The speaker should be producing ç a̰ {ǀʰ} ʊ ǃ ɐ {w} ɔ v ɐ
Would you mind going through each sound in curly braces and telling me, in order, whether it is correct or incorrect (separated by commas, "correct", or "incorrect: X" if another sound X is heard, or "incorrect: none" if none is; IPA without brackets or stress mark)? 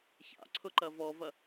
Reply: correct, incorrect: v